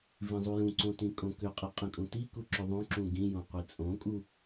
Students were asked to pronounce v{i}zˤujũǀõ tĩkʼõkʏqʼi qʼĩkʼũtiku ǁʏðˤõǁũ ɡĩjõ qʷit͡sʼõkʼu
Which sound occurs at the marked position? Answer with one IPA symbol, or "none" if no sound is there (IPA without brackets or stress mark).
ĩ